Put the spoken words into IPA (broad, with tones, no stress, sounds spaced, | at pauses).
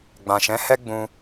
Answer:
ɡ͡b ã˨ ʃ ɛ̃˨˦ h ɛ˦ ɡ͡b ũ˧